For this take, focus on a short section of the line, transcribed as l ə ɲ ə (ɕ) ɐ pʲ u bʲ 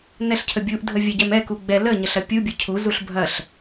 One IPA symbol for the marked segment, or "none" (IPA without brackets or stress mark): ɬ